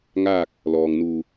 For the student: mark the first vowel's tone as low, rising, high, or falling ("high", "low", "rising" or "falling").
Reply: falling